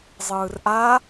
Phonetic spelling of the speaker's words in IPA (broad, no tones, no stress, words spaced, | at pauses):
zˤɯːrʔa